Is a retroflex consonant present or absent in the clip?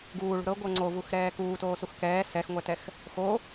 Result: present